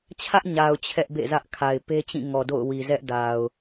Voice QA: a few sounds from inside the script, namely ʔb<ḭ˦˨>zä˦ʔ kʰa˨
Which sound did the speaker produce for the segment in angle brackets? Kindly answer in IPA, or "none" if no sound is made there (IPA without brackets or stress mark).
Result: ḛ˦˨